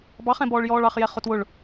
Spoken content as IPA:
b ɑ χ ɛ̃ b ɔː ɭ j ɔː ɭ ɑ χ j ɛ χ ʊ t w ʊ ɭ

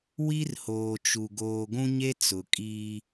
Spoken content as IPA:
w i˦ r h oː˨ t͡ʃ u˨ ɡ oː˨ ɡʷ ũ˦ ɲ e˦ t͡s ʊ˨ kʼ iː˦

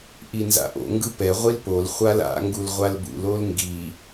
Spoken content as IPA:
ʔ i n z a̰ ʔ o̰ ŋ ɡ ɯ p ɛ ʁʷ i l p o l χʷ a l a̰ ŋ ɡ u l ʁʷ a l b ṵ l o l ŋ ɡ i

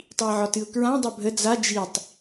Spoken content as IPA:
tˤ i ə̯ ʕ ɒ t ɨ ʊ̯ k ɹ ã dˤ ɛ bʱ ə d͡z a d͡ʒ i tˤ

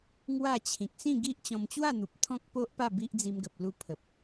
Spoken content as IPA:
ŋ w a˥˧ t͡ɕʰ ĩ˨ k̚ s ĩ˥˧ ɡ i˦ ʔ t͡ɕ ɔ̃˧ m t͡ɕ w a˥˧ n̪ u˨ p̚ t̪ʰ ɔ̃˦ k̚ p o˦ ʔ p a˥˧ b i˦ ʔ d͡z i˧ m ɡ ə˨ p̚ l u˧ pʰ ə˨ p̚

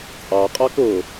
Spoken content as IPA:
t͡sʼ ɑ qʼ ɑ k ʊ

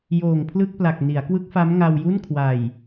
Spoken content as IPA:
j oː˨˩ ŋ pʰ l ɯ˥˩ k̚ p l a˨˩ k̚ n i˩˦ a̯ k w ɯ˦˥ k̚ f a˦˥ m ŋ a˧ w j u˥˩ n kʰ w a˨˩ j

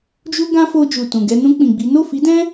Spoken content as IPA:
d͡ʒ u˧ ɡ ã˧ f o˧ d͡ʒ u˨ t ũ˨ ɡ ɛ˧ n ũ˧ k͡p ĩ˨ ɡ͡b i˨˦ n o˦˨ f i˨˦ d ɛ̃˦

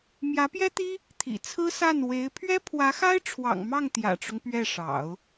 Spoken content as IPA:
m j ä˧˥ p j ɛ˥ t̪ i˥ | t̪ʰ ḭ˨˩ t͡sʰ ɹ̩˥ s a˥˩ n w e˧˥ ɪ̯ pʰ ɥ ɛ˥ pʰ w ä˧˥ x a˥ ɪ̯ ʈ͡ʂʰ w ɑ̰˨˩ ŋ m ɑ˥˩ ŋ t̪ j ä̰˨˩ ʈ͡ʂ ʊ˦ ŋ p ɥ ɛ˥˩ ʂ ɑ̰˨˩˦ ʊ̯

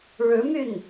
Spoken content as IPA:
ɻ ɻ̩˧˥ m y˥˩ n

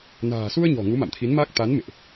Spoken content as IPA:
n a̤ː˨˩ s u˧ ə̯ ɲ ɔ̤˨˩ ŋ u˨˦ m a̰˧˨ m t̪ʰ i˨˦ n m a˦˥ k̚ t̪ a˨˦ n m ḛ˧˨ ʔ

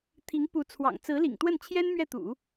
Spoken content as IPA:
t̪ʰ i˧˥ ŋ p u˧˥ t͡sʰ w ɑ̰˨˩ ŋ t͡s ɹ̩˧˥ l ḭ˨˩ ŋ t̪ w ə˥˩ n t͡ɕʰ j ɛ˥ n m ɥ ɛ˥˩ t̪ ṵ˨˩˦

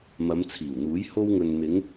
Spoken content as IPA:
m ɐ˨˧ m t͡sʰ iː˨˩ w n̪ uː˨˥ j h o˧ w ŋ ɵ˨ n n̪ ɪ˨˧ ŋ

